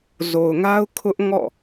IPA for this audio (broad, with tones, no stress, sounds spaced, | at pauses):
z o˨ ʊ̯ ŋ a˦ ʊ̯ kʰ ʊ˦ ʔ ŋ ɔ̰˦˨